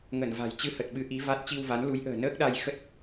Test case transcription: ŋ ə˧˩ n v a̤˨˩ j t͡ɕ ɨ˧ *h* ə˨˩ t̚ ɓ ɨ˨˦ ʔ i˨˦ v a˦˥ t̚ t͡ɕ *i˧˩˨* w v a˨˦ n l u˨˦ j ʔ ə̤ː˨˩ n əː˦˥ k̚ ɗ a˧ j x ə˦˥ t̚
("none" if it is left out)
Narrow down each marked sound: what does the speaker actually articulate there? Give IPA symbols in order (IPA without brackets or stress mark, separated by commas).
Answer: h, i˧